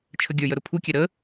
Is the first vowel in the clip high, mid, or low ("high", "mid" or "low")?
mid